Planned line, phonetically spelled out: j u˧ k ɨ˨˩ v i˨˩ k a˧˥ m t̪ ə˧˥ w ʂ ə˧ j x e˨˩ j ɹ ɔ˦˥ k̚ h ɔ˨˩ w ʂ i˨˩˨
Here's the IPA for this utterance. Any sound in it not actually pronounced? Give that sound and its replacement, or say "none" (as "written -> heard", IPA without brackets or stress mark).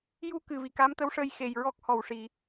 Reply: none